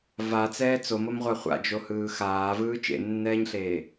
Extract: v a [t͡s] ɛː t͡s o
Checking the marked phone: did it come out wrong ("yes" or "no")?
no